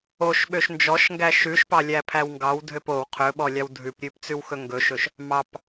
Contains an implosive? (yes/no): yes